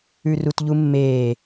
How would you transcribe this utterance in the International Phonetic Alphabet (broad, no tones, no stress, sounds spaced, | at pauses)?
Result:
ʉ r u t ʎ u mː eː